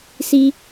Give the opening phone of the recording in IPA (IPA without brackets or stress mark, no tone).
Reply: s